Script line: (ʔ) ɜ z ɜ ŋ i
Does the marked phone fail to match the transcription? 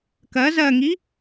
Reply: yes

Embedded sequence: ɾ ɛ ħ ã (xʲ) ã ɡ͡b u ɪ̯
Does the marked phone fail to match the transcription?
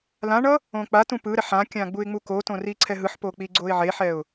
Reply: yes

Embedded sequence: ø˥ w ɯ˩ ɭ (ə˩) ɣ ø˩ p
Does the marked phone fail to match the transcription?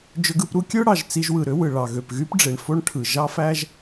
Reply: yes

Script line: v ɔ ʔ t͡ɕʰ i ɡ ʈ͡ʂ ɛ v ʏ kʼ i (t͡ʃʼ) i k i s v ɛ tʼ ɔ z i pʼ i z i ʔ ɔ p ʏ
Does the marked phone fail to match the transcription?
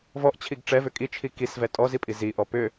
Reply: yes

